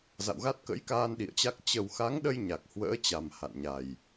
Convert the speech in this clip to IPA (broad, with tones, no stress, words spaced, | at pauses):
za̰˧˨wɣa˦˥t̚kə̰˧˥jkaː˧n ɗḭ˧˨ə̯t͡ɕa˦˥k̚ t͡ɕə˨˩wxa˨˦ŋɗə˧j ɲa˨˩k̚ hwə̰ː˧˥t͡ɕa˨˩m ha̰˧˨nɲa˨˩j